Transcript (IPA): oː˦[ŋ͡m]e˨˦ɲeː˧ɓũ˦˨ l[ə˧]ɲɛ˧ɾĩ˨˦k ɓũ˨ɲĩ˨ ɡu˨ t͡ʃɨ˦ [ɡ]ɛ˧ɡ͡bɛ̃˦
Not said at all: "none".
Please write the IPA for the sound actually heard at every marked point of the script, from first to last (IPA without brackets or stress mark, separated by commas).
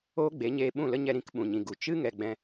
ɡ͡b, ə˦, ŋ